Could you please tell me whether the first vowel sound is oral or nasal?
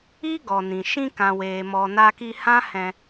oral